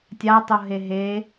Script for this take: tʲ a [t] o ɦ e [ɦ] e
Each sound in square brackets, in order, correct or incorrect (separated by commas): incorrect, correct